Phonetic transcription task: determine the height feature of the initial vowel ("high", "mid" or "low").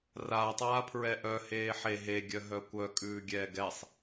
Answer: low